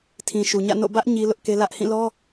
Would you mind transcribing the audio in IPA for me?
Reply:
tʰ ĩ˨ ʃ u˨ ɲ ä̰˦˨ n o̰˦˨ b ä˦ ʔ ɲ i˦ l ʊ˦ ʔ k e˦ l ä˦ ʔ h ĩ˦˨ l ɔ˦

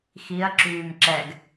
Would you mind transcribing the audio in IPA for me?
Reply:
x i ɐ̯ ǁ yː m ǁ ɛ ɡ

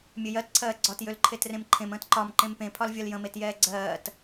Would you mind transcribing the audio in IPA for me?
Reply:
mʲ ø j ɜ t ǀʰ ɜː ɡ͡ǀ ɒ t j ø l ǃʰ e t r ẽ m ǃʰ ẽ m ə̃ː t ǃ ɒ m ǃ ẽ m p ẽ pʰ ɒ l vʲ ə l j ə̃ m e t j ɛː ɡ͡ǀ ɜː t

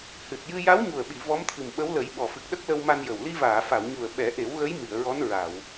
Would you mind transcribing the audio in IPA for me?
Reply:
h ɨ˨˩ t̚ j ɨ˧ j a˧˥ w ɲ u˨˩ ə̯ ɓ i˨˩˨ v ɔ˧˥ m t̪ʰ ɨ˨˩ m ɓ ə˧˥ w l ə˨˩˦ j ɓ ɔ˨˩ f ɨ˨˩ k̚ ɗ ə˦˥ k̚ l ə˧ w m a˧ n j ə˨˩ w l i˧ v aː˨˩˨ f a˨˩˨ w ɲ u˨˩ ə̯ ɓ ɛ˨˩˦ ʔ e˨˩˦ w ɣ ə˧˥ j m i˨˩˨ ə̯ ɹ ɔ˧˥ n ɹ a˨˩˨ w

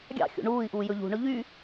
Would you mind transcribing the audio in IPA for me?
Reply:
ɡʲ ɑ̰ xʲ ṵ ɳ uː i̯ ʔ uː j ɵ ʎ ṳ ɳ ɵ ʎ y

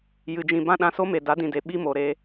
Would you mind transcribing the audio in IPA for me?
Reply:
j ɨ˨ d͡ʒ ĩ˨ b ã˦ ɗ ã˧ s o˦ m e˨ d a˨˦ d ĩ˨ d e˨ ɓ i˦ m o˨ ɾ eː˧

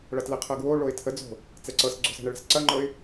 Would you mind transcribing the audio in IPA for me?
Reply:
ɭ ɐ t l ɛ qʰ ɤ ɡ w o ɭ o ɪ̯ tʰ ə d͡z o̤ | t͡s ɛ ǀ ɤ s ɡ͡ǀ o̤ s ɛ̤ ɳ ə ɭ ɛ̤ s ǀ ɐ ŋ͡ǃ ɤ ɪ̯

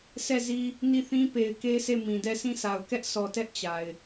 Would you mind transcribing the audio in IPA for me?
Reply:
s ɛ˦˨ z i˦ | n i˦˨ θ ĩ˦ p e˨ ɪ̯ k e˦ sʰ e˦˨ m ĩ˨ d ɛ˦˨ s ĩ˦˨ s a˨ ʊ̯ k ɛ˦ ʔ s ɔ˨ t ɛ˦ ʔ t͡ɕ a˨ ɪ̯

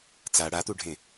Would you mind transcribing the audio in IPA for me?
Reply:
t͡s a ɽ a t̪ u ɖʱ ẽ

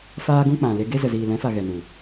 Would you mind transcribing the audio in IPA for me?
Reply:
f aː˦ ɡ ũ˦ k͡p ã˨ l e˧ ɡ e˦ z ə˨ z iː˨ l ɛ̃˨˦ f a˨ ɣ ɛ˨ n u˨

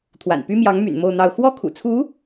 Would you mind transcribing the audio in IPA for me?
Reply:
t̪ʰ w a̰˨˩ n p y˥ m j ɑ˧˥ ŋ m y̰˨˩ n m o˥˧ ʊ̯ n̪ ɑ˥˧ ʊ̯ x w ɔ˥˩ kʰ ṵ˨˩ t͡sʰ u˧˥

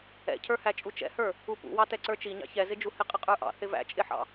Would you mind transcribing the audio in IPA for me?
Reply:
ɛ̰ cʰ ə˞ h æ t͡ʃʼ u t͡ʃ ɛ̰ h ə˞ | u p ṵ w ɑ t ɛ ǀ ə˞ t͡ʃ i ɲ ɑ̰ ç ɛ z ɪ d͡ʒ u h ɪ qʼ ɪ qʼ ə˞ ʔ ɑ̰ θ ɪ v æ̰ t͡ʃʼ ɪ ħ ɑ̰

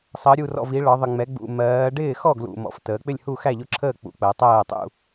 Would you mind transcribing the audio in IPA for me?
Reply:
sˤ əː˩˧ ɾʲ u˨˩ r ɔ̰˨˩ v i˩˧ ɭ ɒ˩˧ ðˤ ə˨˩ ŋ͡m ɛ˩˧ ɡ͡b ṵ˨˩ m ɜː˩˧ ɖ ɪː˥˩ x ɔ˥˩ ɡ l ṵ˨˩ m ɔ̰˩˧ f t əː˩˧ k͡p ɪ˥˩ lʲ h u˥˩ x æ˥˩ ʎ ʊ˥˩ ǁʰ əː˥˩ k͡p ṵ˨˩ k͡p ɜ˩˧ tˤ ɜː˥˩ tˤ ṵ˥˩

